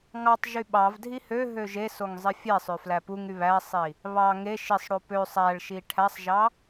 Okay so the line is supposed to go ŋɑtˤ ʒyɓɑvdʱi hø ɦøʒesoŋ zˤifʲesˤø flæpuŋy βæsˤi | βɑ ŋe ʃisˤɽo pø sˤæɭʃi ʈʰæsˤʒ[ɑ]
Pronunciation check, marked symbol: correct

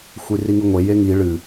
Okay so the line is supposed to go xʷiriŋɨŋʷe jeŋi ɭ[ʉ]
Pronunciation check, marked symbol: incorrect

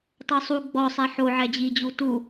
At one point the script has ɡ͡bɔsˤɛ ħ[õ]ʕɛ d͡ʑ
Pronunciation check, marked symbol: incorrect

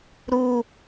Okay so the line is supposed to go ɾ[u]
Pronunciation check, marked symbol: correct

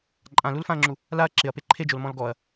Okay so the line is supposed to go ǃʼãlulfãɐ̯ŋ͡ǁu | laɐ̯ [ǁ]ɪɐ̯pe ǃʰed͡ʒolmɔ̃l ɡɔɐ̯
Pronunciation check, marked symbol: correct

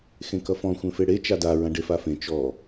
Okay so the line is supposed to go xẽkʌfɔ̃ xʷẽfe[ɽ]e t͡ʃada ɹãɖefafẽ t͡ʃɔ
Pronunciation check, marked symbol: correct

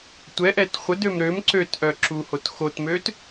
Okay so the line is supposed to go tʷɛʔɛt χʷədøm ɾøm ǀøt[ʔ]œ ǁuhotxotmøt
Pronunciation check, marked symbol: correct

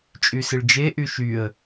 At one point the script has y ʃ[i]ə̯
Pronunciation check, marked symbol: incorrect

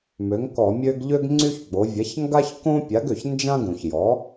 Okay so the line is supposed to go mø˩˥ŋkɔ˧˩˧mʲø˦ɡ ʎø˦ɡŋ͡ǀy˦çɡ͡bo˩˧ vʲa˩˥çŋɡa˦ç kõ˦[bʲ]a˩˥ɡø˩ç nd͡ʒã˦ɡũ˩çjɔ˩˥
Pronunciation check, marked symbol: incorrect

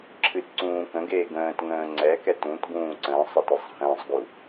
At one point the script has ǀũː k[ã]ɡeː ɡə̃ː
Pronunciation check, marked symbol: incorrect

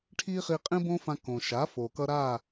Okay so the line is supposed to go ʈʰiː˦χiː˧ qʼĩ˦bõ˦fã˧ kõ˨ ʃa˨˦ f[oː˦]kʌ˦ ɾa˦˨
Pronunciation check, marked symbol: incorrect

